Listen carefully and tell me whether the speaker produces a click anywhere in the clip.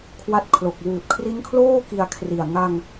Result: no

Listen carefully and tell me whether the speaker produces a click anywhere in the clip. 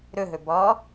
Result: no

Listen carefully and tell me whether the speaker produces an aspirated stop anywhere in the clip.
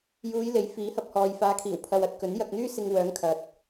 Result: yes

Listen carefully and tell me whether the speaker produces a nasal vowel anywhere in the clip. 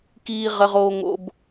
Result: no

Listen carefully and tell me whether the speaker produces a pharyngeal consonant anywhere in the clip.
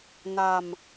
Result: no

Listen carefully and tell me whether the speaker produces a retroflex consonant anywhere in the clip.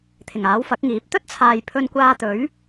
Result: no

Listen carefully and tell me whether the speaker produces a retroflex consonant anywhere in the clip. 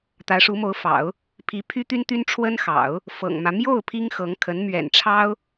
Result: yes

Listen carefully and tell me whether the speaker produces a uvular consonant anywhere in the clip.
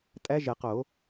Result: yes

